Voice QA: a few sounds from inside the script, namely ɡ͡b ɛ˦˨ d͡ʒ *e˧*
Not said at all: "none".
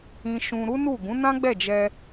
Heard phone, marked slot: ɛ˧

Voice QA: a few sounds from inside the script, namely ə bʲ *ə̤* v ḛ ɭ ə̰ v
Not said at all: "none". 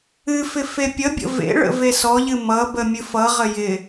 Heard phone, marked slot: ə̰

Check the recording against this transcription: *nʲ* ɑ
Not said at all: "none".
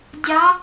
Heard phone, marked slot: dʲ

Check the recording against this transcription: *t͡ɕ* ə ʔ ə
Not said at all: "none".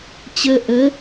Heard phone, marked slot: t͡ɕ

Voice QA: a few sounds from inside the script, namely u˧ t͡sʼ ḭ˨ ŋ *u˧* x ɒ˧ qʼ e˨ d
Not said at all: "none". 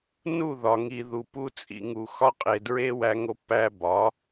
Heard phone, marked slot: u˨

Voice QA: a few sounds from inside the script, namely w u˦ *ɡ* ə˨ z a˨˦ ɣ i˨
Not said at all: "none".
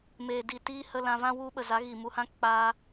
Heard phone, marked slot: ɓ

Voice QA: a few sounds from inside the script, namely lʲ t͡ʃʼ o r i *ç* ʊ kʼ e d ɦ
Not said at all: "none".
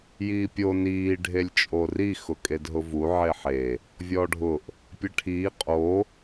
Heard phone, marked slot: x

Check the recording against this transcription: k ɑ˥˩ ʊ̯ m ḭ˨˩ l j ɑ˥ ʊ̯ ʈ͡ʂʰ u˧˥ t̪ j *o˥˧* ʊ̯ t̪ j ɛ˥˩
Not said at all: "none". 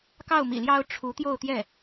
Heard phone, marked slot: o˥˧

